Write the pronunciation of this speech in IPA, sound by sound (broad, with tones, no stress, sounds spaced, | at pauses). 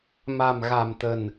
m a̤˨˩ m ɣ a̤˨˩ m t̪ ə̤˨˩ n